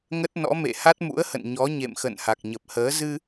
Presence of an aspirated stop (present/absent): absent